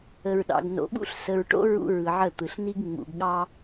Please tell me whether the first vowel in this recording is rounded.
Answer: no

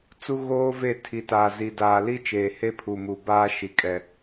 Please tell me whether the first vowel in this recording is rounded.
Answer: yes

